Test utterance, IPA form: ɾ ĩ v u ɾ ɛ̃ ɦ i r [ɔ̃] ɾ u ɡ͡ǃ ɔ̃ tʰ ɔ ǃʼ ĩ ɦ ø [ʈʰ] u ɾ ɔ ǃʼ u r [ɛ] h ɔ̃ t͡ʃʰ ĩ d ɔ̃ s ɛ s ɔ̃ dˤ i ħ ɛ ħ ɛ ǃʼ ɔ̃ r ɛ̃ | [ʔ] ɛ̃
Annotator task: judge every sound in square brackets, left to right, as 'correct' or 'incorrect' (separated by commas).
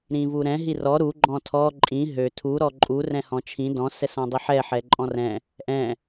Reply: incorrect, incorrect, incorrect, correct